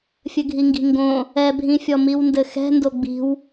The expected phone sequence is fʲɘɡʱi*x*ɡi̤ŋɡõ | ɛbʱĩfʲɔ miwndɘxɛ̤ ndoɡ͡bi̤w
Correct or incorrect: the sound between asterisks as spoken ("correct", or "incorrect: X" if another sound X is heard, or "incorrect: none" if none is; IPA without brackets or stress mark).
incorrect: ŋ